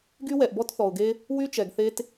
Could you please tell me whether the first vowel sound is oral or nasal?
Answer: oral